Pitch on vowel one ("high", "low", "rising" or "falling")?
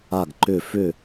falling